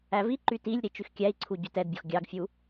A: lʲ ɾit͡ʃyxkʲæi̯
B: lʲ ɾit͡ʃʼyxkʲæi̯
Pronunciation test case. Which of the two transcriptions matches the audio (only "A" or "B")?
A